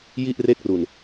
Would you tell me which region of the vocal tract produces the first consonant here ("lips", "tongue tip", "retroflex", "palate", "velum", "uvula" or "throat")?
palate